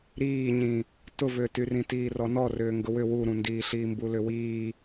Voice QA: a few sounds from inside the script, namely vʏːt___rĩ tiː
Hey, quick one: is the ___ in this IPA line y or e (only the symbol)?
y